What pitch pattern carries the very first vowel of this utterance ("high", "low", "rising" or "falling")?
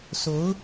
rising